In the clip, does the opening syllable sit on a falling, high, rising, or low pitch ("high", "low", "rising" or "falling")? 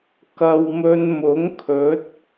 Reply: low